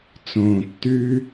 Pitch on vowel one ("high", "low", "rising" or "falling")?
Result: low